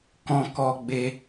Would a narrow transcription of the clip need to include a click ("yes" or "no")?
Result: no